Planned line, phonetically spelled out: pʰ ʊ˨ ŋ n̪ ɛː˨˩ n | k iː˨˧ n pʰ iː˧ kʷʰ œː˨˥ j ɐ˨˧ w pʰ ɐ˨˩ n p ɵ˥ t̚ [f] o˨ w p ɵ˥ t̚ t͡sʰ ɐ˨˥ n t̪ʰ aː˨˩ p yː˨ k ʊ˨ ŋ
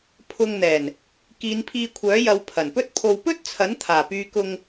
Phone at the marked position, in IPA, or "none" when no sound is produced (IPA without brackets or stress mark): pʰ